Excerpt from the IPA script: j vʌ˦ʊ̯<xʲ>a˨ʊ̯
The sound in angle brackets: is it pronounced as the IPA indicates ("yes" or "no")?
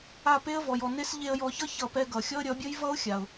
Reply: yes